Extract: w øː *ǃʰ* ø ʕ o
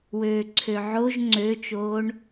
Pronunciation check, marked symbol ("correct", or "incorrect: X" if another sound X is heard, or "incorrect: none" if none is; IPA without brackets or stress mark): incorrect: ǀʰ